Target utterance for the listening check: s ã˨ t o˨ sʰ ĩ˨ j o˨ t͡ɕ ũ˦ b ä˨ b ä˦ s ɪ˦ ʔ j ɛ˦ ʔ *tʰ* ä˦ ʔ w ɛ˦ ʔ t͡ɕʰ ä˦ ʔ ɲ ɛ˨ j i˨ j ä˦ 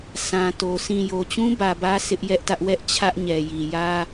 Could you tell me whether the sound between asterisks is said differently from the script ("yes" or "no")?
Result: yes